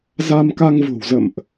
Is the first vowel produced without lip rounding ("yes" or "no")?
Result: yes